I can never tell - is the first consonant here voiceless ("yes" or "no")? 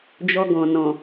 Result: no